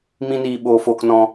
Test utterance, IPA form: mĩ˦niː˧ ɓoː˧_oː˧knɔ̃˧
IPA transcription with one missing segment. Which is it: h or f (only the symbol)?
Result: f